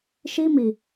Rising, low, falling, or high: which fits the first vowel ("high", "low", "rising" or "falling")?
high